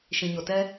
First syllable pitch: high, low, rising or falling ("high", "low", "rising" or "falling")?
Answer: low